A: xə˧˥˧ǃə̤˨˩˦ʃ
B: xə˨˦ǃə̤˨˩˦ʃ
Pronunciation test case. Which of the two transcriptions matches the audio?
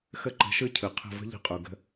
A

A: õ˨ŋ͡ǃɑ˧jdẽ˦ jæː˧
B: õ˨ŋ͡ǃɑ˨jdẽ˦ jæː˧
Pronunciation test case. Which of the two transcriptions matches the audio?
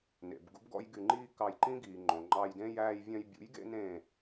A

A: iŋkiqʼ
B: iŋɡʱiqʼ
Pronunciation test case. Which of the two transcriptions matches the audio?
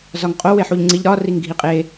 B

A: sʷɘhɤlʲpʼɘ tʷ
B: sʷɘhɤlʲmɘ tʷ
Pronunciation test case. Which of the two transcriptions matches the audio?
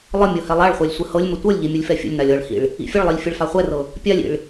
B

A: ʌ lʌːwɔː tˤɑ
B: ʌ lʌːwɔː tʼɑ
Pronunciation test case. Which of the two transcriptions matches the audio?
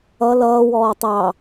A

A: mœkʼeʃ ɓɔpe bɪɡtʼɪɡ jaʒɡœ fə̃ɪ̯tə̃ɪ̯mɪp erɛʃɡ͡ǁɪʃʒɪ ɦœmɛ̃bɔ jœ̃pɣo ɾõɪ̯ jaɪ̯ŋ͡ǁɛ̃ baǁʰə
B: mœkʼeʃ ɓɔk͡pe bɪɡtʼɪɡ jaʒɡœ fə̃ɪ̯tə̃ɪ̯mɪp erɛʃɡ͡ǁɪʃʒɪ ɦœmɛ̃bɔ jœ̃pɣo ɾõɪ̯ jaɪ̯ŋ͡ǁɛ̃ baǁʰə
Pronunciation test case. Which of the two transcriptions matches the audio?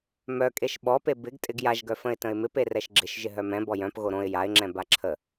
A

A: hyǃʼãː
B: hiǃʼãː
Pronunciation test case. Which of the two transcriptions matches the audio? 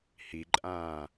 B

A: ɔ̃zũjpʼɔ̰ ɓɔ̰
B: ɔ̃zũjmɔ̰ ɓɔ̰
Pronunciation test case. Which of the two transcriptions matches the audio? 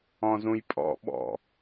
A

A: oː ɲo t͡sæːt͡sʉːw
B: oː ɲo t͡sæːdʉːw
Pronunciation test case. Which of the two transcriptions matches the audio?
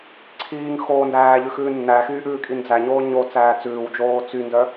A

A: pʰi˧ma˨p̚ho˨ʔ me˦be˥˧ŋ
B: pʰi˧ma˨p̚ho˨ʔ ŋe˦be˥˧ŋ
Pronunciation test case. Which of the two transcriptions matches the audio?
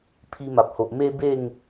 A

